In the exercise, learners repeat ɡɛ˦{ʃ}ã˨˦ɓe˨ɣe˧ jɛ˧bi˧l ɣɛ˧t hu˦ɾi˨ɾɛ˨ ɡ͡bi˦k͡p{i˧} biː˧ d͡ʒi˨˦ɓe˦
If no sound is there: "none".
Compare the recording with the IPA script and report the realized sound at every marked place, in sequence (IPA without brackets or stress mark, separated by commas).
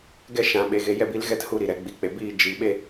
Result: ʃ, e˧